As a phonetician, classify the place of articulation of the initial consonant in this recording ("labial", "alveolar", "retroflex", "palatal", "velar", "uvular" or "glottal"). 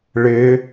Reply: retroflex